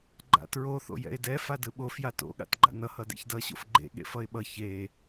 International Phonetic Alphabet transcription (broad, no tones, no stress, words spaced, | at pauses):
ɡ͡ǃa̰tɹo θo̰jɛ̰ɪ̯dɛ fadɯɓo fjato̰ ɠa̰tɡ͡ǃa̰nʌ hʌdḛçdʌ ɕo̰fɡ͡ǃḛ ɠḛfʌɪ̯ɓʌ çe